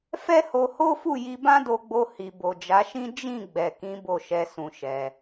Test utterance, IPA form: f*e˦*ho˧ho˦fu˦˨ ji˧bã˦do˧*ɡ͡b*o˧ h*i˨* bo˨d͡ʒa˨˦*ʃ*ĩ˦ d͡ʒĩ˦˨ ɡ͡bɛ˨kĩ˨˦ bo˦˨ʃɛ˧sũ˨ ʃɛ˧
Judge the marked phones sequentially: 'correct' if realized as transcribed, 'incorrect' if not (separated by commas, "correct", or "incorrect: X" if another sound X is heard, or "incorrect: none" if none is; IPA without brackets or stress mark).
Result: incorrect: ɛ˦, correct, correct, correct